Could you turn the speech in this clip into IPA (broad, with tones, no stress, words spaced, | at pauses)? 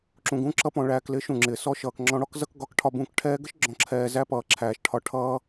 ǁũ˨ɡũ˧ǁʌ˧pɔ̃˨ ɭæː˨klɪ˨˦ ʃũ˨ŋ͡ǁɪː˨ sɔ˧ʃʌː˨k ŋ͡ǁɔ̃˧ɽɔ˦kzʌ˦k ɡɒ˧kʈʰɒ˦˨bũ˦˨k ʈʰɛː˧ɡə˦ʃ ɡ͡ǁɔ̃˧ǁʰɛː˧ zæ˦pʌː˨ ǁʰæː˨ʃʈʰɒ˧ ʈʰʌː˧